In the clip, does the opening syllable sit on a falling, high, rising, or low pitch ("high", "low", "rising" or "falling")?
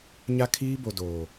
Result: high